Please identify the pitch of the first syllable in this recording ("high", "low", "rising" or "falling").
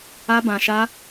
high